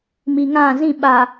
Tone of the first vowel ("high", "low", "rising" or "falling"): low